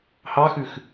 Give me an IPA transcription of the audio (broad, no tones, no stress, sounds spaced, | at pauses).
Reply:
h ɑ x ʉ x